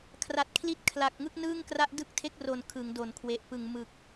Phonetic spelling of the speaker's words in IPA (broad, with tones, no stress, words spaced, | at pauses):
kʰra˨˩t̚kʰli˥˩t̚ kʰla˨˩k̚ ŋɯ˥˩k̚nɯː˥˩ŋkra˥˩ʔ dɯ˥˩k̚tʰe˥˩k̚ro˨˩n kʰɯ˩˦ŋdo˨˩nkʰwe˨˩ʔpɯ˨˩ŋ mɯ˨˩k̚